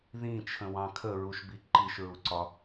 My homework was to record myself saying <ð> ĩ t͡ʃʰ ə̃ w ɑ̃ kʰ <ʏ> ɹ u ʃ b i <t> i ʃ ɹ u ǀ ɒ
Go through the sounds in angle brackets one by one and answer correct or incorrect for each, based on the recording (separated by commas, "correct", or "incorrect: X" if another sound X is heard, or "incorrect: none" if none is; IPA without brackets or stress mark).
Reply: correct, incorrect: ə, incorrect: ǃ